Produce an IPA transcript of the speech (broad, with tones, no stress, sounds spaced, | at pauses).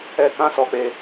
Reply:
ɛ˧ k ã˦ s ɔ˧ k͡p e˧